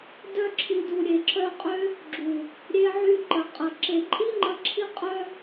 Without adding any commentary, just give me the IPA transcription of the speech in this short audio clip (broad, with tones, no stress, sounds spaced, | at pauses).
d œ˧ ǁʰ i˨ d u˨ ɾʲ e˨ ǁ œ˧ qʼ ø˦ | ɡ͡ǁ u˨ | ɾʲ e˧ ʕ y˧ ǃ ə˨ qʼ ə˨ ǁ e˨ ǃʼ i˦ ŋ͡ǃ ə˧ ǁʰ i˦ qʼ œ˦